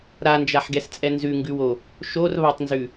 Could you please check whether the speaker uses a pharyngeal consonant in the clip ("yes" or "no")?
yes